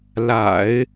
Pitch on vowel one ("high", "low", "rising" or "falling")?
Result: low